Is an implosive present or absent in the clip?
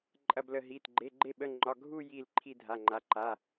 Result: present